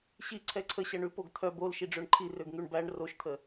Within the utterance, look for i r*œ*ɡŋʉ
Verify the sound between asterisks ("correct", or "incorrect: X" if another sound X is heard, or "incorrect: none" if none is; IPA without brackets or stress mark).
incorrect: ø